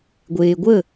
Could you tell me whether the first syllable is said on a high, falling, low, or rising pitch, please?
low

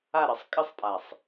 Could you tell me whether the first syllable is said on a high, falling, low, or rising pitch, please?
falling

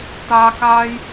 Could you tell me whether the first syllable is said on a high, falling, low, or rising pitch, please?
high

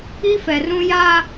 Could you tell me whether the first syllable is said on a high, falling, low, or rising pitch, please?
high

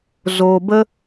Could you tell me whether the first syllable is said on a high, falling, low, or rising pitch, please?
low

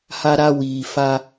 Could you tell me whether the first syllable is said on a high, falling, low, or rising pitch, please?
low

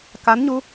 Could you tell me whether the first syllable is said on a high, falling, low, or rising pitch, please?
rising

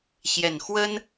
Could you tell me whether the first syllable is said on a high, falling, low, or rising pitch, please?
low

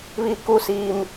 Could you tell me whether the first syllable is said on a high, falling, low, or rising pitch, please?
low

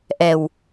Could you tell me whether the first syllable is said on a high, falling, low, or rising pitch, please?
low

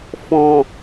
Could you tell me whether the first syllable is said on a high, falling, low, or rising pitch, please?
low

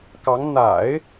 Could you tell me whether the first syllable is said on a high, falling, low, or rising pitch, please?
rising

